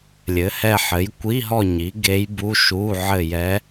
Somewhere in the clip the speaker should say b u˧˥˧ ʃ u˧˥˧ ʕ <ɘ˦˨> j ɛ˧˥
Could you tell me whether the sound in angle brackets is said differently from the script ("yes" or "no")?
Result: no